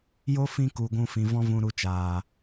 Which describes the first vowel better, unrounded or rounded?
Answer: rounded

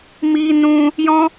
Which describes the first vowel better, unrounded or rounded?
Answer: unrounded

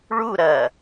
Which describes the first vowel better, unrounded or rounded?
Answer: rounded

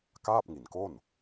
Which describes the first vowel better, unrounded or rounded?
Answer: unrounded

